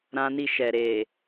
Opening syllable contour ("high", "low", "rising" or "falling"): high